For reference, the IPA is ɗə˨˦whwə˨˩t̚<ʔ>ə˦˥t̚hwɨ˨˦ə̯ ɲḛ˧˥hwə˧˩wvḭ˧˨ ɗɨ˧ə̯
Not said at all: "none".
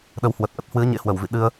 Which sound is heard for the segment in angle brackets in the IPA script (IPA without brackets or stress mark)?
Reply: ʔ